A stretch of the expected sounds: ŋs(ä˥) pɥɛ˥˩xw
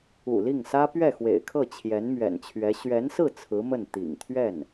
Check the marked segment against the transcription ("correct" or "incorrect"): correct